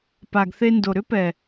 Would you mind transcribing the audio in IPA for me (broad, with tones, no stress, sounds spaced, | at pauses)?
p a˨ ɡ θ e˧ n d o˨ ɾ ʏ˦ p ɛ˨